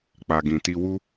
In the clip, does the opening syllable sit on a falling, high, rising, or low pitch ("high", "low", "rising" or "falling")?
low